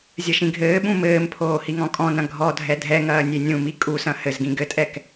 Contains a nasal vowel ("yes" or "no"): yes